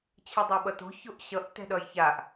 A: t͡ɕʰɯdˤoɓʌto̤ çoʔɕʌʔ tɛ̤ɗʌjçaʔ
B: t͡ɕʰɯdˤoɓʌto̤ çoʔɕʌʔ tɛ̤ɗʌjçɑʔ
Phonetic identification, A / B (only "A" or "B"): A